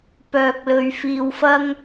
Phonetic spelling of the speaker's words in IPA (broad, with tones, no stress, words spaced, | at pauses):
pœː˧k̚lɵ˧ɥfiː˧wfɐ˥ŋ